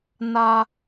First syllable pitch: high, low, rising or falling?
high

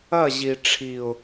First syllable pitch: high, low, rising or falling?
falling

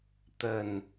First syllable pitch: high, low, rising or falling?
low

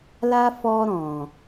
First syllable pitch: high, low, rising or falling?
high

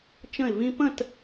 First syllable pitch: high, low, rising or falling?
falling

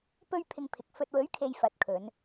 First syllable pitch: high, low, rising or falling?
high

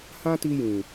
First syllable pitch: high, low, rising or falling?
high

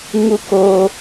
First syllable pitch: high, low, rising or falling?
low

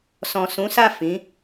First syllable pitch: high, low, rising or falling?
low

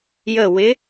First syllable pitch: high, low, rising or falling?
falling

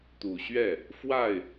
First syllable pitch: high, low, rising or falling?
low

